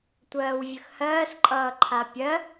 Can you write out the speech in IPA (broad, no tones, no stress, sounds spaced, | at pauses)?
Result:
tʷ ɜː w vʲ ə x h ɜː s ǃʼ ʌː ǃʰ a pʲ ɜ